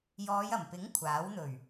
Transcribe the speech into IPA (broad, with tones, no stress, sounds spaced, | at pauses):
j ɔː˨˧ j ɐ˨˩ m p ɪ˨˥ ŋ kʷʰ aː˨˥ w n̪ ɵ˨˩ ɥ